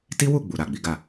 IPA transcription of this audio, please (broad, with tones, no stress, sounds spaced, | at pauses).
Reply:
t i˦ w u˦˨ ɡ͡b u˨ ɾ a˨ ɡ͡b i˨˦ ɡ a˦˨